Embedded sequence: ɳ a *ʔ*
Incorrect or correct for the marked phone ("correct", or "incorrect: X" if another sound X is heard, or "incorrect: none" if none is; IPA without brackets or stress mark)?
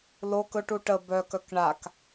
incorrect: k